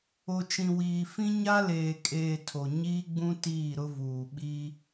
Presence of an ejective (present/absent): present